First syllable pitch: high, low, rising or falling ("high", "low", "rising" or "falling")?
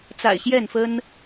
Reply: low